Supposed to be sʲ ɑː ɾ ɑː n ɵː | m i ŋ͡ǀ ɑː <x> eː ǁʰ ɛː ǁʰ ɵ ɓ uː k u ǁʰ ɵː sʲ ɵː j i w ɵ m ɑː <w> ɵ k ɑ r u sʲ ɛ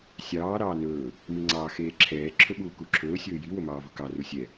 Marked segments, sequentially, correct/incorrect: correct, incorrect: v

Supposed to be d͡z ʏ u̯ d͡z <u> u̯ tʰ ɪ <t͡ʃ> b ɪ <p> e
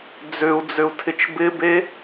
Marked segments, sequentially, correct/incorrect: incorrect: ʏ, correct, incorrect: b

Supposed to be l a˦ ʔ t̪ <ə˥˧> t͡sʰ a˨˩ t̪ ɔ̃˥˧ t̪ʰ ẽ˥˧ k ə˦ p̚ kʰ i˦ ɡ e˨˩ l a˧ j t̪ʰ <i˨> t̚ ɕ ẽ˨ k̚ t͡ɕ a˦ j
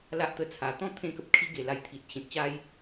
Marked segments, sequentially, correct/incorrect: incorrect: ə˧, correct

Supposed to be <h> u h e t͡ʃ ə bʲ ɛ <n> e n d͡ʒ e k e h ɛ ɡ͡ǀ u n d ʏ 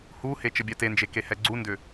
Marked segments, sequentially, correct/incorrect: correct, incorrect: t

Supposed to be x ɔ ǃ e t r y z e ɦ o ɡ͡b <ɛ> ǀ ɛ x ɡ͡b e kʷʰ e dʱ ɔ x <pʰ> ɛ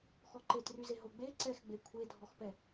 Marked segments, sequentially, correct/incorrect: incorrect: e, incorrect: p

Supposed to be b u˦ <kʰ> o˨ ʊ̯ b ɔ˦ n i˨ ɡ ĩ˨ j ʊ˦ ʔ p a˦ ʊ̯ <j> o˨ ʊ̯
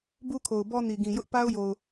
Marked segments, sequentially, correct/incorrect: correct, correct

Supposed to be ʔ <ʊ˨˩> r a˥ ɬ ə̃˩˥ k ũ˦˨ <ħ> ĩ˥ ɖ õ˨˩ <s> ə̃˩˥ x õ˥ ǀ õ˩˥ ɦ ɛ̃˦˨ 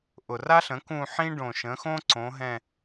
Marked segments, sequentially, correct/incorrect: correct, correct, incorrect: ʃ

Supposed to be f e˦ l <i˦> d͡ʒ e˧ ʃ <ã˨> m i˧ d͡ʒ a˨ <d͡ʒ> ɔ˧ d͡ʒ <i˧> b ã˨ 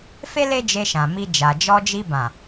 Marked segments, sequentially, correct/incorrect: incorrect: e˦, correct, correct, correct

